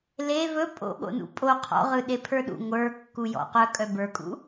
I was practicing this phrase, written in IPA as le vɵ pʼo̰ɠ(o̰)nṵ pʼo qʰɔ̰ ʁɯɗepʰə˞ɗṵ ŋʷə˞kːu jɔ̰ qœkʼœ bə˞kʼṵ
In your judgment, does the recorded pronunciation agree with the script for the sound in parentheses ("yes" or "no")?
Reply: yes